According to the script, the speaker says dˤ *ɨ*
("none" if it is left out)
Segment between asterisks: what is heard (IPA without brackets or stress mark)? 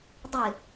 ɨ